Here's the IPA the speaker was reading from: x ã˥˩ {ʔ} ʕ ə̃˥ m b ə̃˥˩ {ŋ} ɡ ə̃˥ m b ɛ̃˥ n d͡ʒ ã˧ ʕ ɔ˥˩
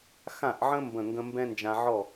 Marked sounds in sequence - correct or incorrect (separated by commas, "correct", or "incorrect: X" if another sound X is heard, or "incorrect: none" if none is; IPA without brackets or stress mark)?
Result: correct, correct